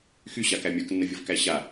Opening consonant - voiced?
no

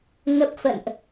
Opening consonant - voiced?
yes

